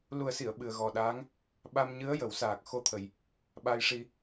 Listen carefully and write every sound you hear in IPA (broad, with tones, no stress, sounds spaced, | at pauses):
l u˨˩ ə̯ s i˨˩˨ ə̯ ɓ ɨ˨˩ ə̯ ɣ ɔ˨˩ ɗ aː˧˥ ŋ | ɓ a˧ m ɲ ɨ˧˥ ə̯ j ə˨˩˦ w s aː˨˩ k̚ x o˧ t̪ʰ ə˨˩ j | ɓ a˧ j ʂ i˧